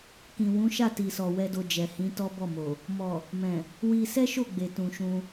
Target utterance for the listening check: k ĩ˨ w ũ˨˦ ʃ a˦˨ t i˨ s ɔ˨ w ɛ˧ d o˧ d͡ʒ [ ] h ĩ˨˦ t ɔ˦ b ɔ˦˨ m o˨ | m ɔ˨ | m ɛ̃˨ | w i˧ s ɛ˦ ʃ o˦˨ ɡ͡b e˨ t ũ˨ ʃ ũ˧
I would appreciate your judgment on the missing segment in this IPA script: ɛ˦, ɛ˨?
ɛ˨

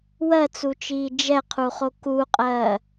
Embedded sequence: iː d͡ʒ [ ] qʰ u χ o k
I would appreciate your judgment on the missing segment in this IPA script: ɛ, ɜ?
ɛ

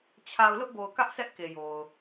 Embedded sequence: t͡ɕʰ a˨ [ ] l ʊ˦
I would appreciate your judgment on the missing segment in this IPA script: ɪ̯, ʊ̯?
ʊ̯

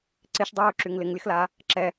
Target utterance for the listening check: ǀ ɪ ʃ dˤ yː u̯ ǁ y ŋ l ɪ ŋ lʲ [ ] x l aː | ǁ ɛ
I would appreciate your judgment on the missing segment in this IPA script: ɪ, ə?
ə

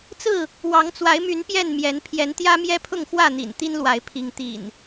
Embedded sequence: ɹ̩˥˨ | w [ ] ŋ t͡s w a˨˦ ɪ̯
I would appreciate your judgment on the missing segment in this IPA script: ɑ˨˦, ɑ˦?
ɑ˨˦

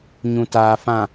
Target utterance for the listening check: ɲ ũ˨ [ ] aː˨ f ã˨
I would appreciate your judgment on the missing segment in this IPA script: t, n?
t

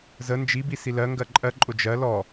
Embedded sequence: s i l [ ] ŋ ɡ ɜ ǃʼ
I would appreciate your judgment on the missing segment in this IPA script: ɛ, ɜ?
ɜ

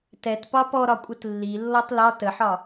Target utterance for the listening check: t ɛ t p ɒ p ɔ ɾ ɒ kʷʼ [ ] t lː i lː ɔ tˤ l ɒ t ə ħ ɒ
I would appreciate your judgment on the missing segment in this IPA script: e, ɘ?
ɘ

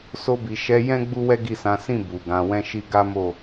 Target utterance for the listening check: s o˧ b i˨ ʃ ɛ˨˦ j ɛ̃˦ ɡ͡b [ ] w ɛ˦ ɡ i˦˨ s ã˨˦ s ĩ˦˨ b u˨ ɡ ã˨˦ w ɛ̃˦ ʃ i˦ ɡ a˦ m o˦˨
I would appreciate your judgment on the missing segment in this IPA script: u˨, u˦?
u˦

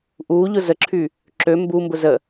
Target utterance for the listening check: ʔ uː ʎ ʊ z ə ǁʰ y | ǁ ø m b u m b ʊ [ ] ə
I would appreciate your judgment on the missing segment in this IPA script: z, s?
z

